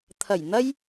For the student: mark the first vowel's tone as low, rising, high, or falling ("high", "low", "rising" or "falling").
low